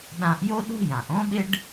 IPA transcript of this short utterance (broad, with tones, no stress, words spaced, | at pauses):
ɗã˧ʔjo˥ɗo̤˥jã˩ʔ õ˥ɓɪ˥ɖ